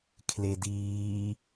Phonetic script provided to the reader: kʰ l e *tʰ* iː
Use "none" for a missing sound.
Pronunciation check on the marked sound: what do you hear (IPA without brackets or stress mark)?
d